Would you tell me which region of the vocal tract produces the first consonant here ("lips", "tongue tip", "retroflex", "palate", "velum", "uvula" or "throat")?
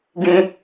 velum